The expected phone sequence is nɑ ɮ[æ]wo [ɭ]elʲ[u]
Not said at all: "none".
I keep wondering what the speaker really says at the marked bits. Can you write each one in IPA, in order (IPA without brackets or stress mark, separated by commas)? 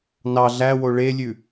æ, ɭ, ʉ